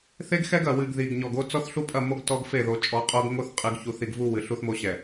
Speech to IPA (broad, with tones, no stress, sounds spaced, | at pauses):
θ e˦ ɡ x ɛ˦ ɡ ɐ˨ w ɨ˨ ɡ ð i˨ ɡ ɲ ɔ˨ ɡ o˦ t͡s ɔ˦ θ ɬ u˦ pʼ ɐ˦˨ m o˦ ɡ t ɔ˦ ɡ f e˦˨ ð o˨ t͡ʃʼ ɔ˨˦ qʼ o˦ ɡ ŋ o˦ θ qʼ ɨ˨ ɡ ç u˨ θ i˨ ɡ v u˦ w ɨ˨ ɬ u˦ θ m o˦ ɕ ɛ˨